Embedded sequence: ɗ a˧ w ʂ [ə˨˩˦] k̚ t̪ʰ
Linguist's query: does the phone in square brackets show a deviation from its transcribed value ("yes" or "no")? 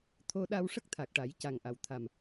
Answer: yes